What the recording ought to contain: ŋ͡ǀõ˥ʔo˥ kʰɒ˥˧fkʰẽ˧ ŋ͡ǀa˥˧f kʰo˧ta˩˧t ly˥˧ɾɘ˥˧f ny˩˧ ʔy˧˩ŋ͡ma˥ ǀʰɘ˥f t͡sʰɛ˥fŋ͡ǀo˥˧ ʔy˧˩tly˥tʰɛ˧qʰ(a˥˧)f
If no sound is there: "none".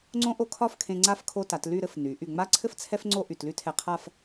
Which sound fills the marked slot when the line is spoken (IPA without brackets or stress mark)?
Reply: a˥˧